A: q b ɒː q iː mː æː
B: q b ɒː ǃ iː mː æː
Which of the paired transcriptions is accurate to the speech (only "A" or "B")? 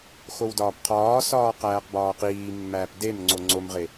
A